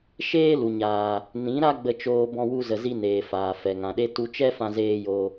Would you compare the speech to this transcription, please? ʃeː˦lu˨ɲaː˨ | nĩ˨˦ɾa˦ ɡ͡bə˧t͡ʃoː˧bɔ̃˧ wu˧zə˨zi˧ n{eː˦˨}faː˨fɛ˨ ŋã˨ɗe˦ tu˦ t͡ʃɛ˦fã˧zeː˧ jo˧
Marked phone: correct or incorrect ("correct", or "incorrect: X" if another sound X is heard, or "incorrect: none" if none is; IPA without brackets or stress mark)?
incorrect: eː˨